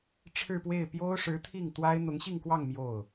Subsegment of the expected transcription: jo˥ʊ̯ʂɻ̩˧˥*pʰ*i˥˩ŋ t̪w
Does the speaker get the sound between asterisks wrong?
yes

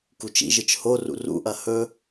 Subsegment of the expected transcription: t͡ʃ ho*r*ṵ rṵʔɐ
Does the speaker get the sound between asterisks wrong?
no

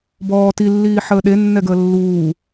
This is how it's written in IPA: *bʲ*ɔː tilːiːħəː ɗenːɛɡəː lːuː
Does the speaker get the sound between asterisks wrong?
yes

